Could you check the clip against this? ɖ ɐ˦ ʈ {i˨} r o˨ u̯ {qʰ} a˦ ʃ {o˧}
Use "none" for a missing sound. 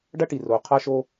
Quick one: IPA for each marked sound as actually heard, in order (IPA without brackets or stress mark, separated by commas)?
i˨, qʰ, o˦